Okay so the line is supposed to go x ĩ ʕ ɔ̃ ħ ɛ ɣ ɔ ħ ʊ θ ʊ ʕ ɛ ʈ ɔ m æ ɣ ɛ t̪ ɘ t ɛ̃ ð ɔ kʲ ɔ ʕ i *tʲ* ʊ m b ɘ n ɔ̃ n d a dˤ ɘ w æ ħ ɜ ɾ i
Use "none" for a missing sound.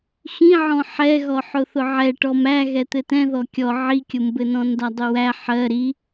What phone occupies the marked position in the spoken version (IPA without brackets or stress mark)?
kʲ